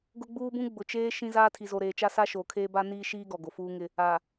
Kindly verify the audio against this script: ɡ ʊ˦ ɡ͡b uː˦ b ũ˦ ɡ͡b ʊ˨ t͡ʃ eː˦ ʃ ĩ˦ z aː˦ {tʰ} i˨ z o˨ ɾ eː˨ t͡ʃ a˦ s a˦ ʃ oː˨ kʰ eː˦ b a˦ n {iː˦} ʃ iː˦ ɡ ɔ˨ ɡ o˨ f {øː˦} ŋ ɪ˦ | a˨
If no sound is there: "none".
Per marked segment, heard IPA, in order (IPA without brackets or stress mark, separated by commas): tʰ, iː˦, uː˦